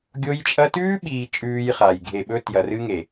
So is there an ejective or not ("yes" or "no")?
yes